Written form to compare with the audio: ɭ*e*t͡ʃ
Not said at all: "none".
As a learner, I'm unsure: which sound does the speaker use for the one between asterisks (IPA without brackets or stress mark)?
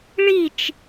i